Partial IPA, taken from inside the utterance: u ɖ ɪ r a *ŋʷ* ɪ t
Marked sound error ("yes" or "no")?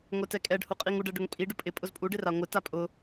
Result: no